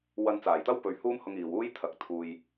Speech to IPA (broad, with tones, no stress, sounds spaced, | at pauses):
w ɐ˧ n t͡s aː˨˩ j t̪ ɐ˥ w p ɵ˨ ɥ h uː˥ m h ʊ˧ ŋ iː˨ w uː˥ j t̪ʰ ɐ˨˥ k̚ t̪ʰ uː˨ j